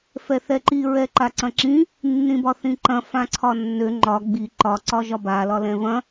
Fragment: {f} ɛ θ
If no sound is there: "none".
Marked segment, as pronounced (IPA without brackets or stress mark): f